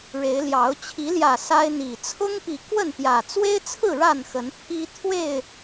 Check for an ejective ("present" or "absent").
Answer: absent